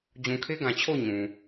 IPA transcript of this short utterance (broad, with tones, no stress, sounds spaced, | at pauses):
d͡ʑ ũ˨ kʰ e˦ ɡ ã˨ t͡ɕʰ o˦˨ ʊ̯ ɲ ũ˨